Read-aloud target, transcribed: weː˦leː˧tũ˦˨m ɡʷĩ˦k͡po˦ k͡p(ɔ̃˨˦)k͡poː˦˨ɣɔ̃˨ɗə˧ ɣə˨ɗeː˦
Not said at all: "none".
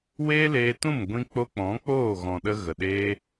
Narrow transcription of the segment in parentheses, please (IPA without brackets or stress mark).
ɔ̃˨˦